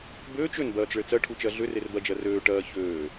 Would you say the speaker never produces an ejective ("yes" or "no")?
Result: yes